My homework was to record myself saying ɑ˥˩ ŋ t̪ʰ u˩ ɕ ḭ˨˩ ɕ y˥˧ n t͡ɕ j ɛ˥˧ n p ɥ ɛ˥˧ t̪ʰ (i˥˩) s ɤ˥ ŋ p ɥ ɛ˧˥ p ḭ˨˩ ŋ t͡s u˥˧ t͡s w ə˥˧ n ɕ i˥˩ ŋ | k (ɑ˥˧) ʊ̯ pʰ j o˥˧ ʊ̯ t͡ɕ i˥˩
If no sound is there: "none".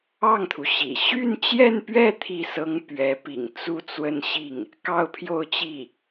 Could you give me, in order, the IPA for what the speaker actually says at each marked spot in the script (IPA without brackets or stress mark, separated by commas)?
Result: i˥˩, ɑ˥˧